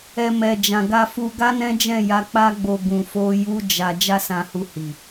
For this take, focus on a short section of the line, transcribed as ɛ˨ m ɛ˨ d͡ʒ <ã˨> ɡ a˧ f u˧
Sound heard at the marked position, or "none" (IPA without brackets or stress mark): ã˨